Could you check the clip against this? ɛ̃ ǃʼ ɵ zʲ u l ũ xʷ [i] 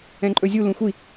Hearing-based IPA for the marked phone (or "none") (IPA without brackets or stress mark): i